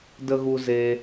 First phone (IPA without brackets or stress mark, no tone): d